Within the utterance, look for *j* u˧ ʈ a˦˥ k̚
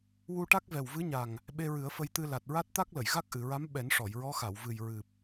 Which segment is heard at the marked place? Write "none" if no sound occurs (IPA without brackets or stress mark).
w